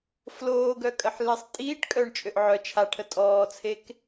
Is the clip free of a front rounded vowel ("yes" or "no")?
no